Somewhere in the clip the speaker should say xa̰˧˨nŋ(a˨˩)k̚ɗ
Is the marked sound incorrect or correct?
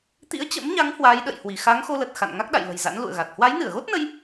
incorrect